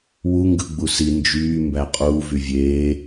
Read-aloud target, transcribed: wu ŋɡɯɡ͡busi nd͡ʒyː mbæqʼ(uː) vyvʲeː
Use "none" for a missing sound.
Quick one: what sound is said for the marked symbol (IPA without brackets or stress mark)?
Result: uː